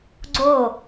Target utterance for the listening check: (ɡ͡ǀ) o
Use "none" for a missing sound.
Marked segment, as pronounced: ɡ͡ǀ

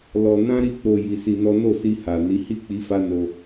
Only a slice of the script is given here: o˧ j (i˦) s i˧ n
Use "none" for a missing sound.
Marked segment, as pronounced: i˧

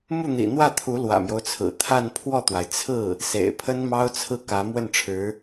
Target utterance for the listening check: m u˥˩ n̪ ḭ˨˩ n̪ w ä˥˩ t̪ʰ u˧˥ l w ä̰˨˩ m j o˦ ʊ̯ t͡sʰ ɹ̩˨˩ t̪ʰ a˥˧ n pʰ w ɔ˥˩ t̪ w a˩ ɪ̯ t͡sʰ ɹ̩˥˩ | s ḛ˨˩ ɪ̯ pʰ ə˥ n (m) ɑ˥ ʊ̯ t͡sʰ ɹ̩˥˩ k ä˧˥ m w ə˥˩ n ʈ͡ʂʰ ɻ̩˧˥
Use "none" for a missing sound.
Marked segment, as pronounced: m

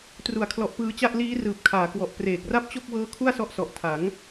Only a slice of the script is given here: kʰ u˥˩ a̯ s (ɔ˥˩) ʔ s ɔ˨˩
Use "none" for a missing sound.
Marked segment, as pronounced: ɔ˦˥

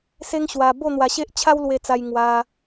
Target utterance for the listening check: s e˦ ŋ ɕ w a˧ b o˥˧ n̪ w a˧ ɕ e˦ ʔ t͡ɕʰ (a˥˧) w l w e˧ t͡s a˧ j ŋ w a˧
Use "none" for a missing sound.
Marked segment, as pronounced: a˦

